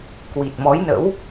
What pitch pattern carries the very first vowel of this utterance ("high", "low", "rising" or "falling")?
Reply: low